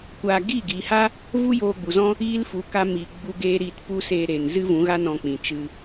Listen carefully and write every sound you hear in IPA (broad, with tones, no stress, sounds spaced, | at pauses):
kʷ aː˧ ɡ iː˦˨ ɡ iː˨ h a˦ | v u˦ j oː˧ ɡ͡b u˨ z ɔ̃˦ | iː˦ l f u˨˦ k a˧ m iː˨ ɡ͡b u˧ ɡ eː˦ ɾ iː˧ t p u˦ s eː˧ ɾ e˨ n z ɨ˦ v ũ˨˦ ɣ a˦ n ɔ̃˧ k͡p ĩ˨ t͡ʃ ɨ˧